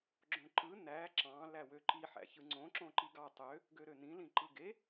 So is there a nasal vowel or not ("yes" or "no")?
yes